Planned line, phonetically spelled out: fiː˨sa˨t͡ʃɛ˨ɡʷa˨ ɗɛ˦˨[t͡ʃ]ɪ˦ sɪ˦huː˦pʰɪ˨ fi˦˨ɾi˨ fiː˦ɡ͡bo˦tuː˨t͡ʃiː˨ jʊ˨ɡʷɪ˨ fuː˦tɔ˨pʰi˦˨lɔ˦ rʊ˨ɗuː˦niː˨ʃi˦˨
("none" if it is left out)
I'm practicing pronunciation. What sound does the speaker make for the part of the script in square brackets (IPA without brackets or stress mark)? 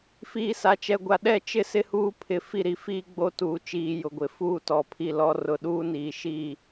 t͡ʃ